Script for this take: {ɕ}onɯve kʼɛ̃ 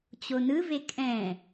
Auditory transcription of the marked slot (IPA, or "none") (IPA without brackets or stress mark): t͡ɕ